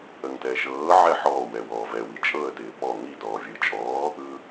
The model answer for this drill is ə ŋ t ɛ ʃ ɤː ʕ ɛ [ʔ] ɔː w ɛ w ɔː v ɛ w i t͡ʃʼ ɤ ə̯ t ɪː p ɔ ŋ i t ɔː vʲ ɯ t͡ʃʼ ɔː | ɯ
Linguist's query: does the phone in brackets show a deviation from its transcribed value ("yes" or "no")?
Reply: yes